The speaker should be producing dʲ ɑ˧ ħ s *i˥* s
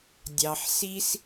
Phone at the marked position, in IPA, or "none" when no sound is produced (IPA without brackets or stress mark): i˥